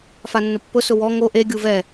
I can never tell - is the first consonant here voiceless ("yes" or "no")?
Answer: yes